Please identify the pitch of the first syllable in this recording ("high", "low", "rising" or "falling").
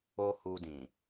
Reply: high